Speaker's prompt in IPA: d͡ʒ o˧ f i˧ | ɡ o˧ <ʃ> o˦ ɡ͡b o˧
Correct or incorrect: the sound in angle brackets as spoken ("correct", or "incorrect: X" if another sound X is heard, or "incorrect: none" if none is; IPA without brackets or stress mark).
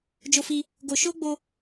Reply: correct